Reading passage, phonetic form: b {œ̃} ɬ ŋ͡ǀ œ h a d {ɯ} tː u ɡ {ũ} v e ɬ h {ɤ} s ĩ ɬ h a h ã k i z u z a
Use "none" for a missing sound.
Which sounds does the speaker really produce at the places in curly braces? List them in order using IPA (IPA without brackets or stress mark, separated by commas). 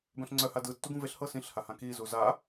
œ̃, ɯ, ũ, ɤ